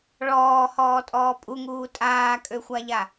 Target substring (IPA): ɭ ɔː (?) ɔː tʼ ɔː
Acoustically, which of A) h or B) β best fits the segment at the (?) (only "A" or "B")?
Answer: A